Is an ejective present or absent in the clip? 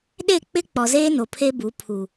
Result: absent